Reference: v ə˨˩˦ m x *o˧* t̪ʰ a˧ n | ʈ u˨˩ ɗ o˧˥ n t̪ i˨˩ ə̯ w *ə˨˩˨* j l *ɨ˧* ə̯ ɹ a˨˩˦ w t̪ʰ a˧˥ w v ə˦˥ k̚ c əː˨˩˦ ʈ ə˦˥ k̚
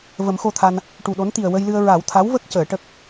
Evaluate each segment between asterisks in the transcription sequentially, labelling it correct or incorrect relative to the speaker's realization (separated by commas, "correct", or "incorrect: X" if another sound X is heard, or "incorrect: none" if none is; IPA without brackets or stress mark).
correct, incorrect: ə˧, correct